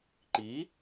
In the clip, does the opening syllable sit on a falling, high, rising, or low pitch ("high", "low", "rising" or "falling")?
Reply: rising